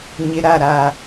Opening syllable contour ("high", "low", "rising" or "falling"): low